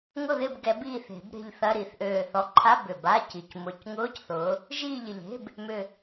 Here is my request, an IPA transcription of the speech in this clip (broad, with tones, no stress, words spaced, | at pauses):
ŋʊ˦˨ðɪ˦˨bɡɛ˨˩˦ biː˦˨θe̤˨˩˦bɾe̤˦˨ʎ θɐ˧˥˧ɾi˨˩θ ʔøː˨˩θɔ˨˦ǃʰa˧˥˧ bʏ˨˩ba˧˥˧ci˨˩c mʊ˨˩˦cŋʊː˧˥˧cθʊː˨˦ | ʒiː˦˨ʎɪ˨˩ʎe̤˧˥˧b | mʏ˨˩